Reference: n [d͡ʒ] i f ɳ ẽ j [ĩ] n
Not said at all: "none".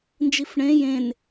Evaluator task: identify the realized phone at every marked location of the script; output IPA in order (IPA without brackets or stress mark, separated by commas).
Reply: d͡ʒ, ẽ